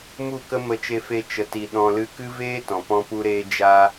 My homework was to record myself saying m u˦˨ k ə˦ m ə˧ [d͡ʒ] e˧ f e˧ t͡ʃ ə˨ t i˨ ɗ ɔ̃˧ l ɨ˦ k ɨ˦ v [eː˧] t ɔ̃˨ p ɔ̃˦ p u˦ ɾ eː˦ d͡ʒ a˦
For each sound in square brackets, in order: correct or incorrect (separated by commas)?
incorrect, incorrect